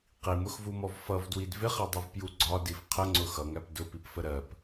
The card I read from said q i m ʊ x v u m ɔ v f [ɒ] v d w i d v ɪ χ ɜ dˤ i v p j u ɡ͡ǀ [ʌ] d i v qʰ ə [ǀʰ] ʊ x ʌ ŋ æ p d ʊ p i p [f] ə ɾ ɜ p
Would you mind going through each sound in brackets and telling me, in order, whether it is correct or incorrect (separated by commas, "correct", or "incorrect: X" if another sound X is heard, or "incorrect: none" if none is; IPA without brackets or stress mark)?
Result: incorrect: ʌ, incorrect: ɒ, incorrect: ŋ͡ǀ, correct